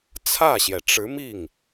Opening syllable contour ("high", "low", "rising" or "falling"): falling